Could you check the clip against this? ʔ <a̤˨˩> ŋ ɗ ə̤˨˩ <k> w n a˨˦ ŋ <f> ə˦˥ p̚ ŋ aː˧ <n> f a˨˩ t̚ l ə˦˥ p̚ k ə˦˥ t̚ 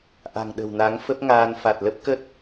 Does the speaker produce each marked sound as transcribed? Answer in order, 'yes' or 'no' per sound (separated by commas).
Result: yes, no, yes, yes